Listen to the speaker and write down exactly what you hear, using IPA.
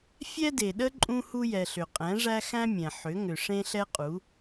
fʲ ɛ˦ d e˨ ɗ ə˦ ǃʼ ũ˦ h u˦ j ɛ˨ ɬ ʏ˨ qʼ ɛ̃˨˦ ʐ æ˦ x æ̃˦ mʲ ɛ̃˨ ħ ʏ˨˦ ŋ ʏ˨ ʂ ẽ˦ ɬ ɛ˦ qʼ u˨˦

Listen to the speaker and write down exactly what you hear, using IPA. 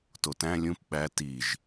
t o t æ̃ lʲ ũ p ɓ æ t i ʒ

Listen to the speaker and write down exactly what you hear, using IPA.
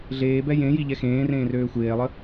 ɮ eː b ɛ j ẽ j i ʎ ɛ x ẽː r ẽː r øː xʷ eː lˠ ə

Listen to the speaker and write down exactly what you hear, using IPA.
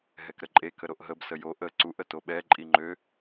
ɦ ɛ k ɾ ə ǃʼ e k ə ɾ o ʔ ɦ ə b s ə j o ʔ ə ǀ u ʔ ə t o ɓ ɛ ǃʼ i ŋ͡ǃ ø

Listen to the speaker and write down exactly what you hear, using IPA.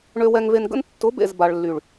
ɳ ø˧ w ɛ˧ ŋ v e˧ n ɡ ə̰˦ n tː ʊ˨˦ b ḛ˨ z b a˨ ɭ lː y˨ ɭ

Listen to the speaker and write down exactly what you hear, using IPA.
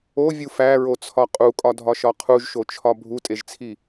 o vʲ u f æ ɹ o t͡sʰ ɒ qʼ u kʼ ɒ dʱ ɒ ʃ ɒ qʰ u ʒ ʃ o t͡ʃʰ ɒ bʱ u tʼ e ʒ t͡sʰ i

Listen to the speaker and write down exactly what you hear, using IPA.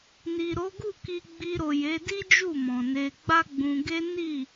n i˨ ɾ o˨˦ ɡ u˦˨ k i˧ ɡ͡b i˧ ɾ o˨ j e˨˦ d i˦ d͡ʒ u˦˨ m ɔ̃˨ n e˧ ɡ͡b a˦ ɡ͡b ũ˧ ɡ e˦ n i˦˨

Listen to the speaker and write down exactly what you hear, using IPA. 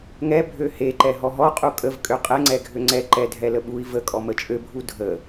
ŋ ɛ bʱ ø h e ǃ ɛ ɦ ɔ ɦ ɔ qʼ u kʼ ə v kʼ ø qʼ ɛ ŋ͡ǀ ɛ ɡʱ ø ŋ͡ǀ ɛ ǃ ɛ dʱ ɛ l ə ɓ u i̯ v ə kʼ ɔ m ə t͡ʃʼ ø bʱ u dʱ ə

